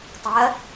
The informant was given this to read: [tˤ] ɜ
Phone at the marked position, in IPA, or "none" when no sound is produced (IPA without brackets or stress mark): tˤ